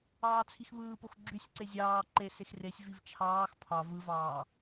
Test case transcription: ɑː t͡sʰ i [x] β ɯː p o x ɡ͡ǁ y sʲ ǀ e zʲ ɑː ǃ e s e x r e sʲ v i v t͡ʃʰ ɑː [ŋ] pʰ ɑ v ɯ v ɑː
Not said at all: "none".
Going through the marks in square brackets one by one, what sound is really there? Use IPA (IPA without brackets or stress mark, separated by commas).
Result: x, x